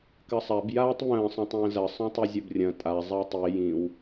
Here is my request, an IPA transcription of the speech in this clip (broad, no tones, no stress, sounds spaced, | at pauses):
k ɐ sˤ a b j aː tˤ β ə̃ː sˤ œ̃ tˤ ə̃ː z ɐ sˤ œ̃ tˤ u zʲ ɐ b rʲ ɐ̃ tʼ a zˤ a tˤ i j ĩ w